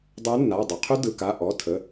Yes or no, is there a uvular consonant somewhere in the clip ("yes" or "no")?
yes